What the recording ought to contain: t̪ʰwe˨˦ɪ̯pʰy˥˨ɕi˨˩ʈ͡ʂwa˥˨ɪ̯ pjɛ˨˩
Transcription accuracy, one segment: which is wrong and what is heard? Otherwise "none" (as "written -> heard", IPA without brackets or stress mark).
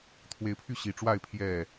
p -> pʰ